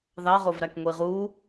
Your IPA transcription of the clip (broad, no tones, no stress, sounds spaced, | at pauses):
ð ɑ ʁ o v ɾ æ k ŋʷ i ʁ u